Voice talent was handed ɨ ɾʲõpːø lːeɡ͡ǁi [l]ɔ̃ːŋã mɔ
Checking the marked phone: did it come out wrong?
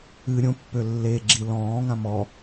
no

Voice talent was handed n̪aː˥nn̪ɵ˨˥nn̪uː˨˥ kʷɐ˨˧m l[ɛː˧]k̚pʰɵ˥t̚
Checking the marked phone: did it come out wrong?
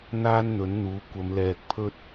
no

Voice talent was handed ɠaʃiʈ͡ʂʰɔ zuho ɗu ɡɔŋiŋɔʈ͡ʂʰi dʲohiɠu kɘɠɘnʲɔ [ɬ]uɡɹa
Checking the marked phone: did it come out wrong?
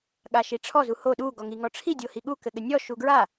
yes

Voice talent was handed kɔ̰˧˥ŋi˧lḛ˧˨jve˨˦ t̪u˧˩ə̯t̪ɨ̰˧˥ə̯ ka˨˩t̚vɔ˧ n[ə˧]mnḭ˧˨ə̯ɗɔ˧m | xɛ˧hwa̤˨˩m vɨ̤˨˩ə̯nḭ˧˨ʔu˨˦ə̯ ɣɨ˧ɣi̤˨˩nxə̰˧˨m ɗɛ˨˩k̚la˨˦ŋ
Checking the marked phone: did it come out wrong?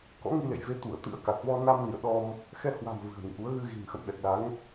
yes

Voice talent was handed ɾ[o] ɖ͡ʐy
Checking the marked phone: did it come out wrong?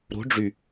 yes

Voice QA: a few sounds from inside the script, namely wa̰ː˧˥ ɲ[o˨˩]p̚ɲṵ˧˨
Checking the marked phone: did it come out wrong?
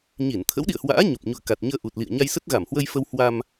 no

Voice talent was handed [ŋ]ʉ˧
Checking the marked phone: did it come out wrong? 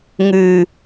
no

